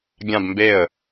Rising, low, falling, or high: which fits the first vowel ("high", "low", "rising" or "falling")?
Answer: falling